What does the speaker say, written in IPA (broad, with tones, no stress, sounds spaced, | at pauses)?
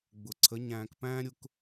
ɡ͡b ʊ˨ ǀʰ ə˨˦ ɲ æ̃ː˧ k p æ̃ː˦ ɾʲ ʊ˦ k